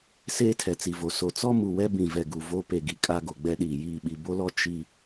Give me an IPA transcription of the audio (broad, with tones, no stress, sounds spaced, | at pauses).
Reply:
s eː˦ tʰ ɛ˨ t͡s i˨ v o˨ s o˨ t͡s ɔ˦ m u˨ w ɛ˦ b ĩ˨ v ɛ˨ ɡ u˨ v o˦ p e˨ ɡ i˨ kʼ a˦ ɡ o˨ ɡ͡b ɛ˦ ɗ iː˨ j iː˦˨ ɓ i˨ b o˦ l ɔ˦ t͡ʃ i˦